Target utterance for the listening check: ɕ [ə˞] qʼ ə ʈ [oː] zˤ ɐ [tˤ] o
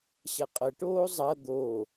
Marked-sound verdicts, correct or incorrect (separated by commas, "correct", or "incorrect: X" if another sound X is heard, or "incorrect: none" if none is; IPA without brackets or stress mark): incorrect: ɐ, correct, incorrect: d̪